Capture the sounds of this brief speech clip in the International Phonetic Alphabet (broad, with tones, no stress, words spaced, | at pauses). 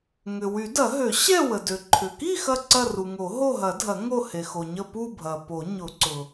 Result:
ŋʏ˩wy˨˩˦dɐ˨˩˦ɦø˨˩˦ ɕɛ˥˧wə˩dø˩ ǃʰʏ˩ki˥˧ xɐ˥˧ǀɐ˥˧ru˩ ŋo˨˩˦ɦo˥˧ɦɐ˨˩˦dʱɐ˨˩˦ ŋo˥˧ he˩xo˩ɲə˥˧ pu˥˧bʱɐ˩ po˨˩˦ɲʊ˨˩˦ǀʊ˩